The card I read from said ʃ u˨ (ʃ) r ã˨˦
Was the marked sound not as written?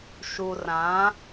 yes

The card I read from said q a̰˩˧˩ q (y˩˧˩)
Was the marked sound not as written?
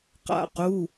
yes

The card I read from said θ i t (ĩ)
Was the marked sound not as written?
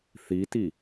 yes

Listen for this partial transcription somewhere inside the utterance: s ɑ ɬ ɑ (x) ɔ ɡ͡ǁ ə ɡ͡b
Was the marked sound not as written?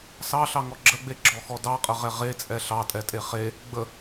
yes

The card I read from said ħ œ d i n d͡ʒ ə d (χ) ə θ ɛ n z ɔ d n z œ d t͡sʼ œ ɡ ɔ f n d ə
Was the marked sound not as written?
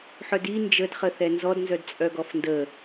no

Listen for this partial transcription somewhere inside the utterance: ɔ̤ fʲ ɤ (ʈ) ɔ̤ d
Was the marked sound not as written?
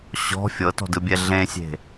yes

